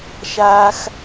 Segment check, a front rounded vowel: absent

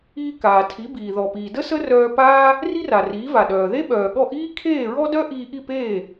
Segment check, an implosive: present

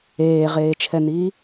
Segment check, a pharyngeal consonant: absent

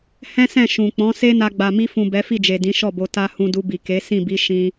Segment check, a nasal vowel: present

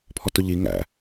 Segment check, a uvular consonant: absent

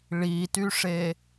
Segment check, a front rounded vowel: present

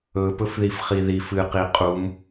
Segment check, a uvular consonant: present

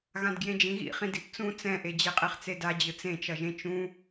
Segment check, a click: absent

